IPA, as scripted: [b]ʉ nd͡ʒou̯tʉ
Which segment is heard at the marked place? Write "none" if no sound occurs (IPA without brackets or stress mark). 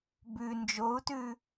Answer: b